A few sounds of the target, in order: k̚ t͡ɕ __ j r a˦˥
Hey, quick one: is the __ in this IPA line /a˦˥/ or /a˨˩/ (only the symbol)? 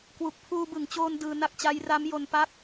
a˦˥